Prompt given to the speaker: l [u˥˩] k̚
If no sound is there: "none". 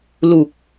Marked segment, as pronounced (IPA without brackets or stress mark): u˨˩